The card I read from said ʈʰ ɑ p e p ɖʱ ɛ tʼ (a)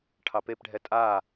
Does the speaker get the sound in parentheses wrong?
no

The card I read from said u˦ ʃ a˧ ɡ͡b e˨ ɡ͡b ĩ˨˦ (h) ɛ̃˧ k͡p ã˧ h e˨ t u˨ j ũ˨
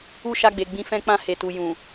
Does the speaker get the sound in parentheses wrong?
yes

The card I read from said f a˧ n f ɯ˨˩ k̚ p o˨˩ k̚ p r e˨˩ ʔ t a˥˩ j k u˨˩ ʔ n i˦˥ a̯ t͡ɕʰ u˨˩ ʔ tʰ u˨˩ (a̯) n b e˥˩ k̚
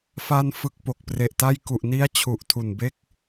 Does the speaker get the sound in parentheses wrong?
yes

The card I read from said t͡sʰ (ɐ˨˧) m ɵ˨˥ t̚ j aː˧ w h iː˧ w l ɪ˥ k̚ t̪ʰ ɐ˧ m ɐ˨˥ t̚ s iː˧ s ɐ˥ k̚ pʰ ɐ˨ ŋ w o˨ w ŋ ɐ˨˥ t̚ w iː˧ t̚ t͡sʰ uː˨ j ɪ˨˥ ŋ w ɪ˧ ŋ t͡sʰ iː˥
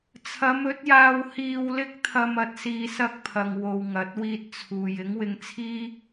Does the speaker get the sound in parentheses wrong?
no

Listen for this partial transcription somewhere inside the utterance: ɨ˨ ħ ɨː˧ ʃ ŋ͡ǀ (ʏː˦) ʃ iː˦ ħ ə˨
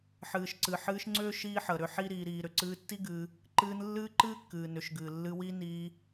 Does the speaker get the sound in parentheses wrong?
no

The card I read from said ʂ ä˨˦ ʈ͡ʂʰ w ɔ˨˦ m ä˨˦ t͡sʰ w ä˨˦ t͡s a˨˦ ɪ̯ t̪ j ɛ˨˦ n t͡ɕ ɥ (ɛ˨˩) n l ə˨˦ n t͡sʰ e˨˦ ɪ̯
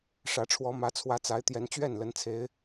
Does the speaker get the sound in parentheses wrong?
yes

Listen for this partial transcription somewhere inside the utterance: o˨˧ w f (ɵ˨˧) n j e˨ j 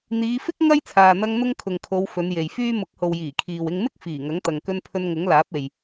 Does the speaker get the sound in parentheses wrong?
no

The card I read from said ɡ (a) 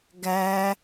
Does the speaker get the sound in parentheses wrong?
yes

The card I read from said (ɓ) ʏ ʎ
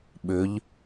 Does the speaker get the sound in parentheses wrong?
no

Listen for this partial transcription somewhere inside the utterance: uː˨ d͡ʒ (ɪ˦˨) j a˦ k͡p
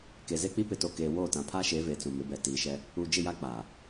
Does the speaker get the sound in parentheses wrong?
no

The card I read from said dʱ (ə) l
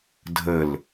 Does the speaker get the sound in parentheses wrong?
no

